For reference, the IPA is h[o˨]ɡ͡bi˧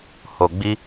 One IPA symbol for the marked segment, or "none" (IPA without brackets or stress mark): o˨